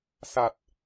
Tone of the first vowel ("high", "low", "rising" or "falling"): low